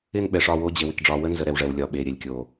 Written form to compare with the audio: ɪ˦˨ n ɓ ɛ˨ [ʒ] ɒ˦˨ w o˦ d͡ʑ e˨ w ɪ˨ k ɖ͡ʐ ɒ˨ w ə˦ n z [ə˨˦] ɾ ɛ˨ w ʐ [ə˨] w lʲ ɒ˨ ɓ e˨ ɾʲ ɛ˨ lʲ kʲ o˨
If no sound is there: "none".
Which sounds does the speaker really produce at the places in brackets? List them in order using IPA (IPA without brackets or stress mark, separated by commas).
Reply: ʂ, ə˨˦, ɛ˨